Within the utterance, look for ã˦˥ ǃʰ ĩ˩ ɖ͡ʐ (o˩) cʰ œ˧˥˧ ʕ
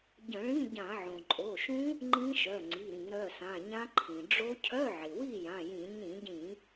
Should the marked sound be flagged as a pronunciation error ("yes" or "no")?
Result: yes